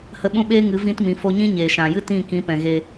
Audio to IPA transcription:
h ə˦ ɓ ũ˦ ɓ eː˦ ŋ ɨ˨˦ v ĩ˦ t m ĩ˨˦ f o˦ ɲ ĩ˦ ɲ eː˨ ʃ ã˨ j ɨ˦ t ĩ˦˨ k ĩ˨˦ p ɛ̃˨ ɣ e˧

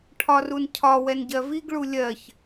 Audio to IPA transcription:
ʈʰ ɒ r u n cʰ ɒ w ɛ n ɟ ɜ v i ɡ ɭ u lʲ ɜ ç

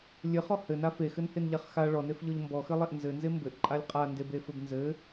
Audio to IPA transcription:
lʲ ɘ χ ɔ h ɘ n a f e x ɘ n h e n ʎ a χ x a ɭ ɔ n e f ʎ ɔ ʎ m b ɔ x ɘ lˠ e ʔ n z ɘ n z e m b ɘ ʔ ǃʼ a lʲ qʼ a n d e b e f ɘ b n z ɘ

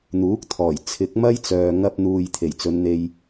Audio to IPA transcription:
n̪ uː˨˥ k̚ t̪ʰ ɔː˨˩ j t͡sʰ ɪ˨˥ k̚ m ɐ˥ j t͡s œː˨ ŋ ɐ˧ p̚ n̪ uː˨ j t̪ʰ e˨˩ j t͡s ɵ˨˧ n n̪ e˧ j

